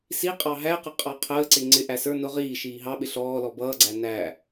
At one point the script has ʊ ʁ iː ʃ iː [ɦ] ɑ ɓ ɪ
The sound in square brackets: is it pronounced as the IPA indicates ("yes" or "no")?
yes